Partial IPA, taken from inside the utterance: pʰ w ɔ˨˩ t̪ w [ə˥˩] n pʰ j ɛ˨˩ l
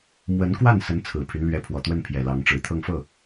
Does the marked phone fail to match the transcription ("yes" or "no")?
no